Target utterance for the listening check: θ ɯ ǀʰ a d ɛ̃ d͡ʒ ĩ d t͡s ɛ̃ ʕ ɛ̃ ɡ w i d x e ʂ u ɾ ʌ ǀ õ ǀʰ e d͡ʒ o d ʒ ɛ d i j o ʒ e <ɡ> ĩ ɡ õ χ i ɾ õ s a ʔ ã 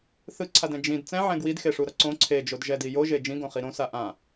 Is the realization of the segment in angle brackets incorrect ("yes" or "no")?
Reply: yes